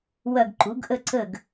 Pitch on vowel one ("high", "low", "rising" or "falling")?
falling